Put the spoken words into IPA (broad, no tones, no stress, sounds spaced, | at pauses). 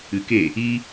ɨ k e | i